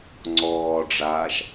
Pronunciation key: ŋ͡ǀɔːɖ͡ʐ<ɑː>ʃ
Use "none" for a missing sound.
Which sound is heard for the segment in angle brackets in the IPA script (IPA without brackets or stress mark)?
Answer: aː